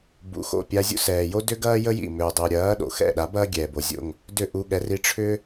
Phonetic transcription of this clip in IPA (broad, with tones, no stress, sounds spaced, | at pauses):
b ṵ˩˥ x o̰˥˩ pʲ a˧ zʲ ṵ˥ s ɛː˩ j o˥ d ʏ˥ ɡ ɐː˥ j ə˥ j ḭ˥˩ m ʏː˩ dˤ ʏː˩ ɾʲ ɐː˩˥ ɗ o̰˩ x ɛ̰˥˩ ɗ a˩˥ b ɐː˥ ɡʲ ɛː˩ b o˩ zʲ o̰˥˩ ŋ | d ʏ˥˩ ʔ u˧ ɠ ɛ˩˥ r i˧ ʈ͡ʂʰ ʏː˥